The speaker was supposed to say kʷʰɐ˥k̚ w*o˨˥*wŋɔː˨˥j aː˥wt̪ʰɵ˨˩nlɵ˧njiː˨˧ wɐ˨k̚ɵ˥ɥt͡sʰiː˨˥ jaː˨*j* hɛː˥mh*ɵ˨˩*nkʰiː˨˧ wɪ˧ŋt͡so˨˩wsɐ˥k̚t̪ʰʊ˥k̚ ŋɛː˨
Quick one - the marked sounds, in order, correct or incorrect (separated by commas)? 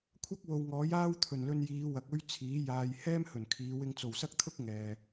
incorrect, correct, correct